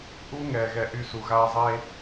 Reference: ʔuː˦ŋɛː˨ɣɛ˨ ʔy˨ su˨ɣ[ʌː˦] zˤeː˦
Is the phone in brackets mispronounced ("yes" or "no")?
yes